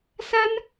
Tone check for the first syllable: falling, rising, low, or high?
high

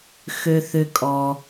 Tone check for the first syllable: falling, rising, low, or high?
high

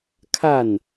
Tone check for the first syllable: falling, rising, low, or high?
falling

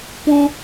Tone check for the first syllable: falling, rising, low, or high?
high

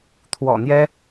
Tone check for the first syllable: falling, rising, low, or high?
low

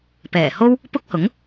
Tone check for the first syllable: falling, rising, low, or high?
low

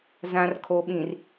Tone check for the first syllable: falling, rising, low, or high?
low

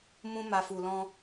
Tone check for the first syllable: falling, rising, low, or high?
high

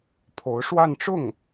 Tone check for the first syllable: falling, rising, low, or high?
rising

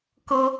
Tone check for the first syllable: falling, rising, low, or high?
high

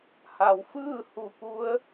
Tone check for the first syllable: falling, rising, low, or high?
low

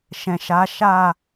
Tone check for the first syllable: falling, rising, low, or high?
low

